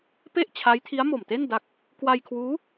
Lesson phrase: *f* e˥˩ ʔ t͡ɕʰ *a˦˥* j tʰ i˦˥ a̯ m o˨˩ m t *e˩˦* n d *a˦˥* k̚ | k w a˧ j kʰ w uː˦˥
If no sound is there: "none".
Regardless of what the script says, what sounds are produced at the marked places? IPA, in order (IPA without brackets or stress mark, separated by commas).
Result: p, a˦˥, e˥˩, a˦˥